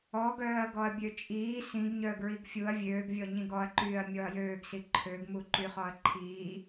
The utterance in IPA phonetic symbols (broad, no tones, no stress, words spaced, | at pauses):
ɔɡœːɐ̯ ɡɔɐ̯bʲøt͡ʃʼiː sĩɡɲœ ɡɹiɡfʲuɐ̯ vʲøːɡvʲɔ ɲĩɡɔɐ̯ǃyːɐ̯ mʲɔɐ̯jøːɡsi ǃʰøɡmu ǃyχɔɐ̯ǃʰiː